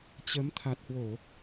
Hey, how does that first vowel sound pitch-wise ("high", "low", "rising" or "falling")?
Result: rising